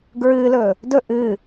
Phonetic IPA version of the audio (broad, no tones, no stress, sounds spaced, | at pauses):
ɡ ɹ ɨː l ɵ | d ɵ ʔ ɨ